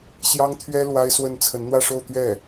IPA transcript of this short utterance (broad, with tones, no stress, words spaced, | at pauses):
ɕjɑ˥ŋt̪ʰɥɛ˥ lwa˥ɪ̯swə˥˩n t͡sʰə˧˥nn̪wä˥˧ʂo˥˧ʊ̯ t̪ɥɛ˥˩